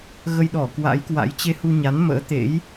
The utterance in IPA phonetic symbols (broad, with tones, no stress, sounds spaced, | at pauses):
ɣ ə˧ j ɗ ɔ˧˩ k w a̰˧˥ j k w a̰˧˥ j t͡ɕ e˧ h u˧ ɲ a˨˦ n m ə̰ː˧˥ t̪ ḛ˧˥ j